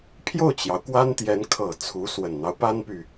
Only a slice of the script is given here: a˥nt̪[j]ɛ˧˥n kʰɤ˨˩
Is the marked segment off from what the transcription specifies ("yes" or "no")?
no